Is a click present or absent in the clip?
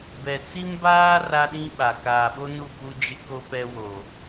absent